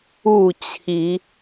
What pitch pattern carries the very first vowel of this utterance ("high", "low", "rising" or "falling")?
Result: falling